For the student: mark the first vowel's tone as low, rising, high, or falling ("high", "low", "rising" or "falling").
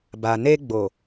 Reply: low